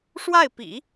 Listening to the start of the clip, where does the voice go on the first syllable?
falling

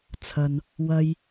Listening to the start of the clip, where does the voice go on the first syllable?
low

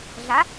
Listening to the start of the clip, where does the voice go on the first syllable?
rising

